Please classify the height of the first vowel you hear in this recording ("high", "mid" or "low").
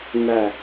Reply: low